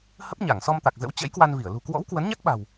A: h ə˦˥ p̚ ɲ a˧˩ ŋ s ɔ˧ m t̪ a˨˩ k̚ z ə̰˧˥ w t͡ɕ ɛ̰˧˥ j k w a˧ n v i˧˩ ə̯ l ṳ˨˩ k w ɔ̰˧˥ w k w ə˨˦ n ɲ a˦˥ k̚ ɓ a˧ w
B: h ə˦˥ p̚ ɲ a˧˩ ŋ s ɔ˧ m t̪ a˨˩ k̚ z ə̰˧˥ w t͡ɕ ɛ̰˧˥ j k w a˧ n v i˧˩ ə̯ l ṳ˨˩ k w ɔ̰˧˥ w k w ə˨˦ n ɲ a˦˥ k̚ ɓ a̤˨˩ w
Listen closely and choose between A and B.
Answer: B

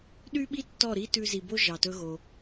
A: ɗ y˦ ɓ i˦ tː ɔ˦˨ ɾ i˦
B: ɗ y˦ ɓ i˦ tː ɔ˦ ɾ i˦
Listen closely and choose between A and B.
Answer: A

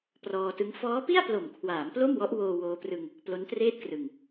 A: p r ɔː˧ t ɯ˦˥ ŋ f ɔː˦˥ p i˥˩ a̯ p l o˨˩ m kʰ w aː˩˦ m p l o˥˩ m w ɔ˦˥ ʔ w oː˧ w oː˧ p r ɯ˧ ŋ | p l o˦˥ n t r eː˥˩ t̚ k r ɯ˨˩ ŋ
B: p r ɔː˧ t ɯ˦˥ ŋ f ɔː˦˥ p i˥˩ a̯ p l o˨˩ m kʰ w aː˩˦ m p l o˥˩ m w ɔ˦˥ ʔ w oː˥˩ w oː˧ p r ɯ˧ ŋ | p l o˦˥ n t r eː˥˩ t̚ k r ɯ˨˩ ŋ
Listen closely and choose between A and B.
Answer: A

